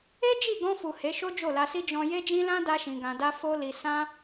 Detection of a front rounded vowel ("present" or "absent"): absent